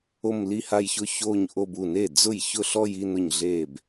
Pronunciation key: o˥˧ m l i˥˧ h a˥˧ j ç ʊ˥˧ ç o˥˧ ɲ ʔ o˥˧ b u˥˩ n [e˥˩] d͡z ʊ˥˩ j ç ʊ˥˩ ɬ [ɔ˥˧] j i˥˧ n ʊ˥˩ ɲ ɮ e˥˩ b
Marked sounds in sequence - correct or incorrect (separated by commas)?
correct, correct